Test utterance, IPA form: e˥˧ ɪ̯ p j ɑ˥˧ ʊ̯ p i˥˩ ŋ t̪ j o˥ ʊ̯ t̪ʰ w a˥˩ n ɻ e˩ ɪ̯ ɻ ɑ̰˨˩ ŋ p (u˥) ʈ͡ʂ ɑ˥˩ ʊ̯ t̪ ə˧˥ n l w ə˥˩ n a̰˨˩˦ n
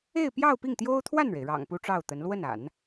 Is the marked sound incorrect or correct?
correct